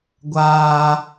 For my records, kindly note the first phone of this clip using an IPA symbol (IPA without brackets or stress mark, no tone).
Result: ɡʷ